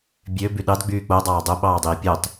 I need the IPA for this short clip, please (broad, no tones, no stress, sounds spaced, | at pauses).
bʲ ø b y ɗ ɑ d ɡ͡b yː k͡p o dˤ ɑː dˤ o ɓ ɑː dˤ iː pʲ o tˤ